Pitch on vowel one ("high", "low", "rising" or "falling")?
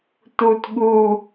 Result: falling